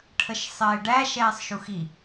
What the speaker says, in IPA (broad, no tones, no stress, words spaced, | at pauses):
ʈʰəʃsˤɪːɖæ ʃɛːsˤʃuxi